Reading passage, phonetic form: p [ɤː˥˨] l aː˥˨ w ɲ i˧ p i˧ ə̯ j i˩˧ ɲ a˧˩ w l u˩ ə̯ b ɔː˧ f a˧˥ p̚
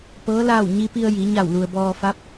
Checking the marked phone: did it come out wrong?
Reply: yes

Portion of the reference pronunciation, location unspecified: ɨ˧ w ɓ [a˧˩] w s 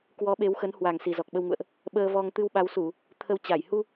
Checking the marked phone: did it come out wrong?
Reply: yes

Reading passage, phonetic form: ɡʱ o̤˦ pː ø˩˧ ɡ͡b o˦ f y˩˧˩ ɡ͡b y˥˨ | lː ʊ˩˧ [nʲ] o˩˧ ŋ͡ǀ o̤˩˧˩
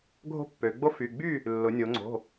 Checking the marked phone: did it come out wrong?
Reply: no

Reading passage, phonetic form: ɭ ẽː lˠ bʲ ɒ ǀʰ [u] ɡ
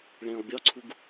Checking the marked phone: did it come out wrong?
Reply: no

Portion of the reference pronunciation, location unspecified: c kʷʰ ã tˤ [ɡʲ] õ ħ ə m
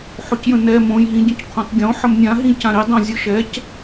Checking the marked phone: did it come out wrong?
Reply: no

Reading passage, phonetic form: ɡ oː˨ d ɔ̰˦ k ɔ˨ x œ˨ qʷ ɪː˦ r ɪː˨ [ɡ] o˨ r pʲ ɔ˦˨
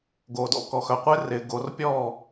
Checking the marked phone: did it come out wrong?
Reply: no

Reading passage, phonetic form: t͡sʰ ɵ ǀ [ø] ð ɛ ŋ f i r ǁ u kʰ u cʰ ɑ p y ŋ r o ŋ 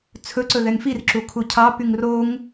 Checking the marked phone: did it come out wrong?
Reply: yes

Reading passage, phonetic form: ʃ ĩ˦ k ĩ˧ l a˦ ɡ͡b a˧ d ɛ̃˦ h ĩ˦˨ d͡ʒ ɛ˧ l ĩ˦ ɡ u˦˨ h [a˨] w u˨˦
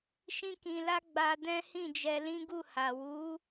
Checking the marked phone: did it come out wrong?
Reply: no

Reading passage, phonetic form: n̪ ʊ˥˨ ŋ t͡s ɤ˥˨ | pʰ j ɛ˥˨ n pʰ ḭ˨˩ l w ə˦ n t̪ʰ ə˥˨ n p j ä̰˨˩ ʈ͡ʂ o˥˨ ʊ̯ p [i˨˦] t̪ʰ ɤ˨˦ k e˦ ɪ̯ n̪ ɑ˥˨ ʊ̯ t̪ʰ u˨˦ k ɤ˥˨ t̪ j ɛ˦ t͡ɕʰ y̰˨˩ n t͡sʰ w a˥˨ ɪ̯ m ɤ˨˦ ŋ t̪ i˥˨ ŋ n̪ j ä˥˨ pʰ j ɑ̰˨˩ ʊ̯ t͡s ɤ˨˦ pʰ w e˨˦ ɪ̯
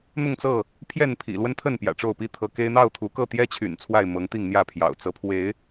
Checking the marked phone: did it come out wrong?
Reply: yes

